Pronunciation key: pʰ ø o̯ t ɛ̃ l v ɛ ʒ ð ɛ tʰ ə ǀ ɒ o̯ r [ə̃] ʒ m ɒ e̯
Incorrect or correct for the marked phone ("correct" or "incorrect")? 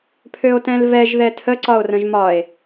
correct